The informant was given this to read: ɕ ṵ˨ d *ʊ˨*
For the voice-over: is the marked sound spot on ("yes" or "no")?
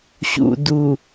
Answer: no